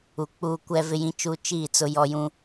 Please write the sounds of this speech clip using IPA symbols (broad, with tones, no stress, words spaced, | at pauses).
u˨k͡puː˦ kʷɛ˦vɪ˦jĩ˦t͡ʃu˦ t͡ʃiː˦˨t͡sʊ˦jɔ˦jũ˦